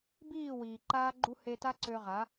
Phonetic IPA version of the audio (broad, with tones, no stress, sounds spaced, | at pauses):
b iː˦˨ w iː˨ ǃ aː˦ ɡ͡ǃ u˦ h e˧ t a˦ ǀ ø˧ ʁ a˨˦